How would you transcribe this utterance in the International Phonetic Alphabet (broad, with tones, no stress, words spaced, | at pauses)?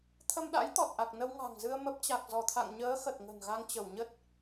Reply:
t̪ʰə˧mɗa̰˧˥jt̪ɔ˨˩t̚ʔa˨˩k̚ nə˧wŋa̤˨˩ŋzɨ˧ə̯ mə˦˥p̚ t͡ɕa˨˩k̚zɔ˧˩t̪ʰa̰˧˨ŋɲəː˨˦ xə˨˩t̚ŋə̤˨˩nɣa˧ŋt͡ɕə˧˩w ɲə˦˥t̚